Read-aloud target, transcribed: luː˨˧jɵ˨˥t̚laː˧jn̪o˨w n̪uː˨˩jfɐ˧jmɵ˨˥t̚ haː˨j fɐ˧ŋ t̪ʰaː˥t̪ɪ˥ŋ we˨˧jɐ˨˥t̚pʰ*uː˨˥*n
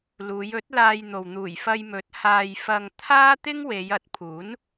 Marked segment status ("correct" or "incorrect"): correct